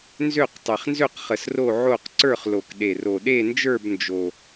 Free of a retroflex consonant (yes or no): yes